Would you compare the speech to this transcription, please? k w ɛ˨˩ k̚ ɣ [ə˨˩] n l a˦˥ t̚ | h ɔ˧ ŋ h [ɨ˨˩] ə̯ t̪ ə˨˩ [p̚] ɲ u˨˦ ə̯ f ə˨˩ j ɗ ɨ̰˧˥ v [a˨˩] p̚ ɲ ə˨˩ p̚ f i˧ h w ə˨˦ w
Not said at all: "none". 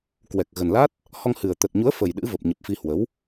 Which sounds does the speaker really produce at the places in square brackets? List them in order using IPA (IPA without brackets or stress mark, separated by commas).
ə˨˩, ɨ˨˩, t̚, ə˨˩